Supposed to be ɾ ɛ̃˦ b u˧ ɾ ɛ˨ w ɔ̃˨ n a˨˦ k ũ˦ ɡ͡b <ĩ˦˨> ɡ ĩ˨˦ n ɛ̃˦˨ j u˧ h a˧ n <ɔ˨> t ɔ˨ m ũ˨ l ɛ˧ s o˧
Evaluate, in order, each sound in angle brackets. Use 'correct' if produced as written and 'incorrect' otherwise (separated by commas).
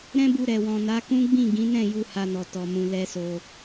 correct, correct